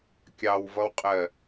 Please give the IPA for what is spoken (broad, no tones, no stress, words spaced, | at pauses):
kʲɑwvʌwqʼɜ